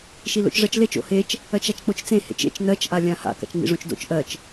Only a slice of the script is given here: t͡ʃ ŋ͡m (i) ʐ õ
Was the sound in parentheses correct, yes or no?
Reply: no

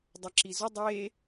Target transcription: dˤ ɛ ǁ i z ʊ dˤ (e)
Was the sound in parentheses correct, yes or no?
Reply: yes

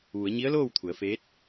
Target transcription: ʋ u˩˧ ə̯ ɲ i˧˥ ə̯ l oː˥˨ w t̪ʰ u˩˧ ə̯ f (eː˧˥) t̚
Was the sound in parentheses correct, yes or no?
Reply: yes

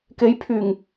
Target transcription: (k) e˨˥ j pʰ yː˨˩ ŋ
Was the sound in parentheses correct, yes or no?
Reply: yes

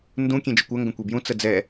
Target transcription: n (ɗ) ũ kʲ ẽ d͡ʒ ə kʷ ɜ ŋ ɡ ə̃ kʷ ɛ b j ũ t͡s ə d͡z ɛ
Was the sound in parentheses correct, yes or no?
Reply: no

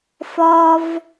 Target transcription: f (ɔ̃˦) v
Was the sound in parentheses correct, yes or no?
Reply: no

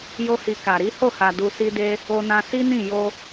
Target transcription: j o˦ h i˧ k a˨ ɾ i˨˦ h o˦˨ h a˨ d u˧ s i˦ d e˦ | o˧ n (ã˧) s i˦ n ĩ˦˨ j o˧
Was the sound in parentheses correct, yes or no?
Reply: yes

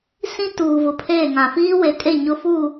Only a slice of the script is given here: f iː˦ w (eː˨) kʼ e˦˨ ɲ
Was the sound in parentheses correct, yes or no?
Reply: no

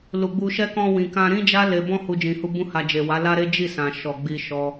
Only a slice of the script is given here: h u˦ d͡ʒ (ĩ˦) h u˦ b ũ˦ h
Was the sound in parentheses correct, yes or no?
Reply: no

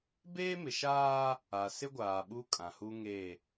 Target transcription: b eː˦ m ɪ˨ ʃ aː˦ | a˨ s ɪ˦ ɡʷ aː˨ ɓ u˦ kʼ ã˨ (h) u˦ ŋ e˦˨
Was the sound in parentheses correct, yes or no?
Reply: yes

